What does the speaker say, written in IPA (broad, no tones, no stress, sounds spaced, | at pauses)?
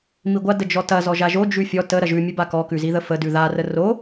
m i ɡʷ a d ə d͡ʒ ɔ t ɐ z ɔ ʒ a ʒ o d͡ʒ ʉ fʲ ɔ t ə ɾ ɐ ʒ ʉ mʲ ʉ b a k ɔ k ʉ z i ð ə f ə d ʉ ð a r ə r o